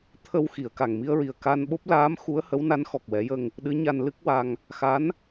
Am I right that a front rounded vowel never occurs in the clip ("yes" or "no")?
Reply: yes